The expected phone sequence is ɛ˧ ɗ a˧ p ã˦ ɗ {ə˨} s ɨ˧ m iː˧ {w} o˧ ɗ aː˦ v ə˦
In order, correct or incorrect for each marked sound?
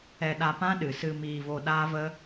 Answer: incorrect: ɨ˨, incorrect: v

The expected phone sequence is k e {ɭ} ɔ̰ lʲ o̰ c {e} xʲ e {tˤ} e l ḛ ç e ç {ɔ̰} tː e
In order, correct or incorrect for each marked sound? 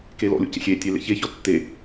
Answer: incorrect: l, incorrect: ḛ, incorrect: tʲ, incorrect: ɔ

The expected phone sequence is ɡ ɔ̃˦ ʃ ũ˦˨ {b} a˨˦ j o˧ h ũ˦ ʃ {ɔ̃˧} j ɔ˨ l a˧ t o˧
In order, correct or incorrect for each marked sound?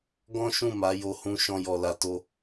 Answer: incorrect: m, correct

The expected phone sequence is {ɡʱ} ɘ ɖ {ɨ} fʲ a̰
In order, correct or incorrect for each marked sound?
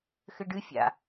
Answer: incorrect: x, correct

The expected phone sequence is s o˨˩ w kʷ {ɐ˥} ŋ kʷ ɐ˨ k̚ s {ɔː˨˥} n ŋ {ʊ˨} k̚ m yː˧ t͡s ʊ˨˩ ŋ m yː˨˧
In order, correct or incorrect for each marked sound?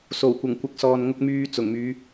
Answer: incorrect: ɐ˨˩, incorrect: ɔː˨, incorrect: ʊ˧

